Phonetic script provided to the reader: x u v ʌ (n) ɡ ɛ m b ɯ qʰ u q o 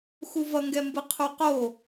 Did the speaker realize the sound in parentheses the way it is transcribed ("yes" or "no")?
no